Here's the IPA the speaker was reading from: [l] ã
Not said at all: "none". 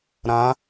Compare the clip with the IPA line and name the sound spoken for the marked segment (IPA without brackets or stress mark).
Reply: ɾ